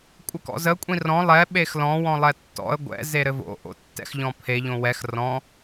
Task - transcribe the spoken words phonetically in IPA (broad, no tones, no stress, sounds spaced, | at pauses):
kʷʼ ɘ k ɔ̰ z ə kʷʼ ĩ r ɔ̃ lˠ ɛ ɓ e x l ɔ̃ w ɔ̃ lˠ ɛ tː ɔ̰ ə̯ ɡʷ ɛ̰ z e ɾ ɘ v o̰ ʔ o̰ tː ɛ̰ x ʎ ɔ̃ pʰ e ʎ õ w ɛ x r ɔ̃